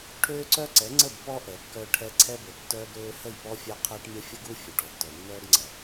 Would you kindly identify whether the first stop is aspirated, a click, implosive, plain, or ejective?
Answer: aspirated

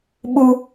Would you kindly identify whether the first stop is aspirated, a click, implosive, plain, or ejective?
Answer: implosive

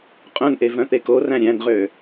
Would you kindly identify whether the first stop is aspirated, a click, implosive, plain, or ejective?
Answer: ejective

